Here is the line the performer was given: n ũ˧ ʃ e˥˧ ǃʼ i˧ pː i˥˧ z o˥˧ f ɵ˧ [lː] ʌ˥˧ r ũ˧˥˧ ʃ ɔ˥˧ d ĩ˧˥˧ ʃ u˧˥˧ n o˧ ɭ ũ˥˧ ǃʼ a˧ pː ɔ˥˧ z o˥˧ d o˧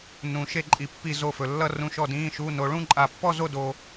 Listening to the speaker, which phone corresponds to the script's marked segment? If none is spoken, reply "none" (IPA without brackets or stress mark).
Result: lː